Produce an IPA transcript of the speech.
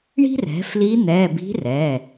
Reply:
ɳi̤˥rɛ̤˩˥fli˧˥ n̪ɛ˩˧˩ bi̤˧˥rɛ˩˧˩

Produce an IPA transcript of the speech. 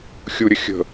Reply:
xʲuɾʲə xʲə̤

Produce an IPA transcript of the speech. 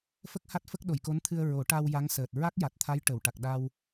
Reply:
fə˦˥k̚ha˦˥t̚fə˦˥k̚ ɗo˨˩˨jko˧˥nt̪ʰɨ˧ə̯ ɹo˨˩˦ʈa˧w ja˧˥ŋsəː˨˩t̚ ɹa˦˥k̚ja˨˩t̚t̪ʰa˧˥j ʈə˨˩˨wʈa˨˩k̚ ɗa˧w

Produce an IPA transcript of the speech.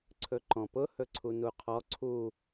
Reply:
ǀʰɵǃɔ̃pʊ hɵǀʰunuqʰɔ ǀʰu

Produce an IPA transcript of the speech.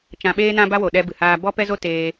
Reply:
t͡ʃã˧ɓeː˦ nã˦ba˦wo˨ ɗɛ˦bɨ˨haː˦ bɔ˦pɛ˦zo˦ teː˧

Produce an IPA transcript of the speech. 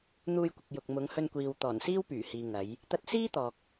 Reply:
n̪uː˧jkʷɪ˨k̚jʊ˨k̚ mʊ˨˧ŋ hɵ˧nkʷiː˨wt̪ɔː˨˩nsiː˥w pyː˨˩hiː˨ ŋɐ˨˧j | t̪ɐ˧t̚siː˥ t̪ɔː˨k̚

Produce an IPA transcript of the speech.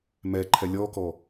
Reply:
mɛǃʰɛ lʲɔkɔ

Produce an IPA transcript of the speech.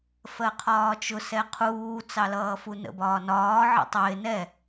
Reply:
fɜqʰɒːt͡ʃʊ sɛqʰuː t͡sɑlʌːfunə̰ bɒːnɒː ʕə̰tˤɪː nɛ

